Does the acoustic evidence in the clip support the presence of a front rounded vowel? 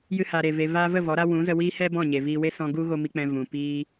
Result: no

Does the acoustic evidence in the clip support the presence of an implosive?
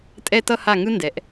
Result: no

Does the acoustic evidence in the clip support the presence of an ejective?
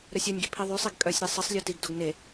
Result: yes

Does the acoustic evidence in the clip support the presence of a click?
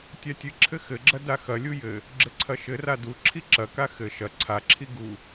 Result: yes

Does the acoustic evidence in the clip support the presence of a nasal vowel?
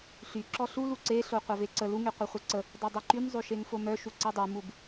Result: no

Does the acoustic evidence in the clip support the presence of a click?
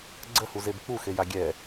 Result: yes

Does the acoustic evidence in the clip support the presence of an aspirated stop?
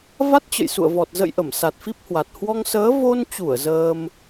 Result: no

